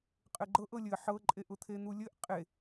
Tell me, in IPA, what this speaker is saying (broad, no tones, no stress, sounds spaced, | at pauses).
qʼ ɘ ɡ͡ǃ ɤ ʔ ɤ lʲ ɘ ħ ɤ ǃʼ e ʔ ʊ t̪ʰ e n̪ u lʲ ɘ ʔ qʼ e